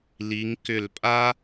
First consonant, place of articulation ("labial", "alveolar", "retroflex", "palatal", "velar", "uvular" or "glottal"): alveolar